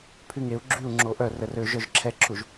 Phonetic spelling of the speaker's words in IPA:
pʰ y ŋ e u̯ ɡ͡ǁ y u̯ ŋ͡ǁ o ʔ œ r ə r ø ʒ œ ʒ ǁʰ ɛ ǁʰ u ʒ

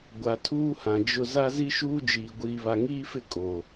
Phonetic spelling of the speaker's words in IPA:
ɡʷ a˨ tʰ uː˦ h ã˨ d͡ʒ ʊ˨ z a˦ z i˦ ʃ uː˦ d͡ʒ iː˨ ɡʷ iː˨ β a˨ ŋ iː˦ f ɪ˦˨ kʼ o˨

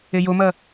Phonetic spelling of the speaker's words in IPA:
e j o m ɐ

